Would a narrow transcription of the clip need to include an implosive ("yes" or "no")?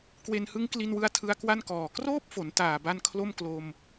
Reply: no